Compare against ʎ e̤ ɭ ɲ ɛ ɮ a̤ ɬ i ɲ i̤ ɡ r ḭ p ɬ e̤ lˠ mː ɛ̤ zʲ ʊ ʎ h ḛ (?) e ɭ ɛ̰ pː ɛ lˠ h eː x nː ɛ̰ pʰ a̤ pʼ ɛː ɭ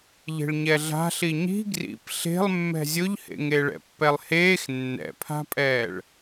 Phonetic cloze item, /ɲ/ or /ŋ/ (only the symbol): ŋ